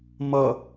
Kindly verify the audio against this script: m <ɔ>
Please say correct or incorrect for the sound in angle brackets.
incorrect: ʌ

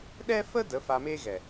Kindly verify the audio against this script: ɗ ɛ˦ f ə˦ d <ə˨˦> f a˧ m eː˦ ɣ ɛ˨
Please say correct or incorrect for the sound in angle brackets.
correct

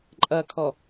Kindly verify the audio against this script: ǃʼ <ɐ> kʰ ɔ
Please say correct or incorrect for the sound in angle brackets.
correct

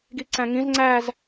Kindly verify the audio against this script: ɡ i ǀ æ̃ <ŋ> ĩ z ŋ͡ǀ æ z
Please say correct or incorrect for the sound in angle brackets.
correct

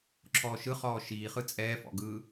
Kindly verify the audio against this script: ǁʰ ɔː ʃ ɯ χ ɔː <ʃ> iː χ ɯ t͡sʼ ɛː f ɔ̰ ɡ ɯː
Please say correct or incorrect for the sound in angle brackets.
correct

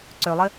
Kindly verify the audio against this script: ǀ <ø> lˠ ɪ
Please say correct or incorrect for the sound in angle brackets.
correct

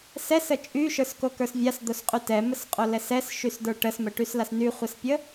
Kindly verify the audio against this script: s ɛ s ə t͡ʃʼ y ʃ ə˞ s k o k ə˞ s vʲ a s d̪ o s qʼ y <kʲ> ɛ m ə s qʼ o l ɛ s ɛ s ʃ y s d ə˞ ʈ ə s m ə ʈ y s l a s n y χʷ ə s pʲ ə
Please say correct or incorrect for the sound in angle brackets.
incorrect: t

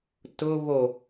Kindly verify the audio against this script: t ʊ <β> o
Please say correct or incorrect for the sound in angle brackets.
correct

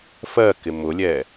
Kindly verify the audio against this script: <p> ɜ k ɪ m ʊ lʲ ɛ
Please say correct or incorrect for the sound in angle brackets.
incorrect: f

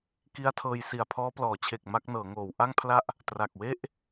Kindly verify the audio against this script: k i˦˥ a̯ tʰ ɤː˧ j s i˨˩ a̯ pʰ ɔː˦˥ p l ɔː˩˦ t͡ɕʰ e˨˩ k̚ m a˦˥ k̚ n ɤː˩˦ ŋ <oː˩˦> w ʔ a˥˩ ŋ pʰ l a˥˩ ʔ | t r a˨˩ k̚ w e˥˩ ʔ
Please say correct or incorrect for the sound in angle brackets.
correct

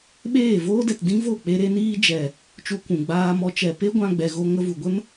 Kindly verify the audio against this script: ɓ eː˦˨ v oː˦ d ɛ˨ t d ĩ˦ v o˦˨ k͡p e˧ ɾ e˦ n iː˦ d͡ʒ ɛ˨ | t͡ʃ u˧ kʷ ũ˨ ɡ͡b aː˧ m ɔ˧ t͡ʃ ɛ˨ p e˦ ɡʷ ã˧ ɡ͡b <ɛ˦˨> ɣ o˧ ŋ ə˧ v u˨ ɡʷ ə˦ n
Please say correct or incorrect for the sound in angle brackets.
incorrect: ɛ˨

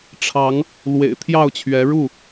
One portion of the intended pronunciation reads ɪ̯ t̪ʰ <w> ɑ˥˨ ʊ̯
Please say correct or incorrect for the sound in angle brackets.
incorrect: j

